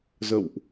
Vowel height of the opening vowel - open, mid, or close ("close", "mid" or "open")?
mid